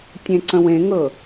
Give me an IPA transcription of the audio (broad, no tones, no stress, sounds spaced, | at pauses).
tʲ ẽ ǀ ə̃ w ẽ ŋ ɤ